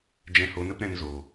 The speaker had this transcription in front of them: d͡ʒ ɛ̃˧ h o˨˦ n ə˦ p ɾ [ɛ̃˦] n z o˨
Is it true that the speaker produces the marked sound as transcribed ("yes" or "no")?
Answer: no